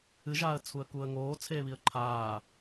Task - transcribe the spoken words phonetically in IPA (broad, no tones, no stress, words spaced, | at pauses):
ɨʒaːə̯t͡sʰuə̯kuːə̯ ŋoːt͡sʰeːβiə̯ ǃʰaː